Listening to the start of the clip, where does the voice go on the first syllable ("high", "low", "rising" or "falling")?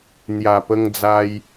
low